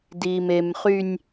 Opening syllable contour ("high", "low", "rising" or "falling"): low